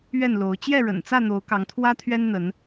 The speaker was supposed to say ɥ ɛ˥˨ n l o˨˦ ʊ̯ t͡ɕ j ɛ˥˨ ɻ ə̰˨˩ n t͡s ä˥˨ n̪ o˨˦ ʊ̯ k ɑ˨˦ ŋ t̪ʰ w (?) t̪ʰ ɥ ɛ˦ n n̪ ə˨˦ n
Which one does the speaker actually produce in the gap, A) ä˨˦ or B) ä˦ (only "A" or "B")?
B